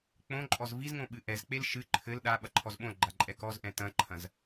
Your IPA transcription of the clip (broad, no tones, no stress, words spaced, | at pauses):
k͡põǃʼɔz vizŋõ ɓɨʔɛzk͡pel ʃɨ ǃʰɘl ɗa ɓɐǃʰɔzɓõlɡ͡ǃa ǃʼɛkɔzʔɛ̃ tɐ̃ǃʰɐ̃z